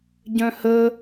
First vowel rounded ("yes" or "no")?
yes